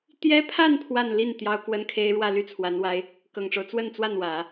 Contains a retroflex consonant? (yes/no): yes